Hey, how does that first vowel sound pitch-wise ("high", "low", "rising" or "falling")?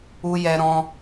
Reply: high